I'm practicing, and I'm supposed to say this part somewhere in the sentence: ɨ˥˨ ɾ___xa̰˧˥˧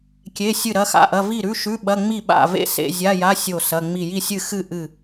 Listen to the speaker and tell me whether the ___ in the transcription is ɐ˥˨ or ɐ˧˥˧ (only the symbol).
ɐ˧˥˧